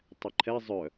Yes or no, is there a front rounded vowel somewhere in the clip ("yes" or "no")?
yes